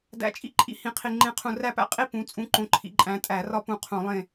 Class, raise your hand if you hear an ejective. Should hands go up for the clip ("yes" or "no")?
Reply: yes